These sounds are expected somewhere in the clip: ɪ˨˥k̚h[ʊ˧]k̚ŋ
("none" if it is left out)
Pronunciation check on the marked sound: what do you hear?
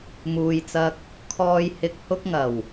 ʊ˧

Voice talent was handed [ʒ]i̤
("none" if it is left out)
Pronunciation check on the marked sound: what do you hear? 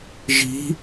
ʒ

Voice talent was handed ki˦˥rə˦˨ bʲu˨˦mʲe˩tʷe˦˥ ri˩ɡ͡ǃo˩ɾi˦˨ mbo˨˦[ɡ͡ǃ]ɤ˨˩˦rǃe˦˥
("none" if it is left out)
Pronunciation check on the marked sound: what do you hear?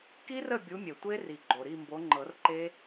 ŋ͡ǃ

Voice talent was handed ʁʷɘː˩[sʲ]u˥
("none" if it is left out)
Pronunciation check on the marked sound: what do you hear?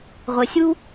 sʲ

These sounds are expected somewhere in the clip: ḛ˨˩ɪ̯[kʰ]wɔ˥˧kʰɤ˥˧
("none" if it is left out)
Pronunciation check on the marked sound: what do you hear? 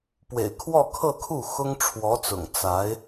kʰ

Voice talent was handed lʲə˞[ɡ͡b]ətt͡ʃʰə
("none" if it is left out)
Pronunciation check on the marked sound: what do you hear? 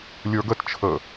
ɡ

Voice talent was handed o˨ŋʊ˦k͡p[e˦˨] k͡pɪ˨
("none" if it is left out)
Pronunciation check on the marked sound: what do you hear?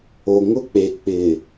e˨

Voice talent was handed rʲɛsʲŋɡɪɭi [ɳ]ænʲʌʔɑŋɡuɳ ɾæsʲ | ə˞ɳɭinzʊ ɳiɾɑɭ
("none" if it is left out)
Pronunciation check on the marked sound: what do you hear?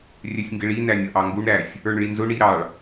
n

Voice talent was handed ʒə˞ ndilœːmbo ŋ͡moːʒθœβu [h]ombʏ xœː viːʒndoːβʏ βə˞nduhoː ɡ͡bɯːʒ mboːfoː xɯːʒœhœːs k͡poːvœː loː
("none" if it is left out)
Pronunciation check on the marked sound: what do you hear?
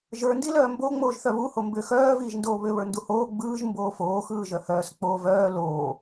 h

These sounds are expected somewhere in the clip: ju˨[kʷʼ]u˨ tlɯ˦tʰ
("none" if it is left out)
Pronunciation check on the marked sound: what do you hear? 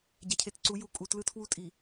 kʼ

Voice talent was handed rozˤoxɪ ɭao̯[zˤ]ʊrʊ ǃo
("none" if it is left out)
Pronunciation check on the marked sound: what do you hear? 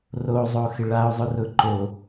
zˤ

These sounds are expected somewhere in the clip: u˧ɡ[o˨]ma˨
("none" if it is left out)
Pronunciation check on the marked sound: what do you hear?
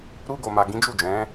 o˨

